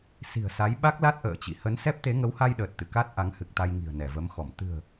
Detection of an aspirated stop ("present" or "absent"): absent